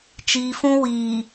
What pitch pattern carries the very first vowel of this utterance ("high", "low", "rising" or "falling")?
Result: low